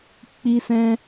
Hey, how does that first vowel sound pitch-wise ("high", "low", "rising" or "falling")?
high